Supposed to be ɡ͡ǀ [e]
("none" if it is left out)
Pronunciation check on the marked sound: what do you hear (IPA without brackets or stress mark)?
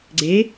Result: e